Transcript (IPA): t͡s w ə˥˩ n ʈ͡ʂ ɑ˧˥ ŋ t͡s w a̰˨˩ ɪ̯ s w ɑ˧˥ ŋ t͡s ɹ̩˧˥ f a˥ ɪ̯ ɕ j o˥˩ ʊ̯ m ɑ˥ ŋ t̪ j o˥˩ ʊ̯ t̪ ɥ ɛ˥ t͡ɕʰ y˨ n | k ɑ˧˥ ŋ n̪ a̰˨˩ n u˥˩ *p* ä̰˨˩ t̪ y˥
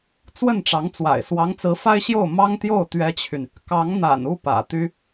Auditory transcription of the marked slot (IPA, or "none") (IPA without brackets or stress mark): p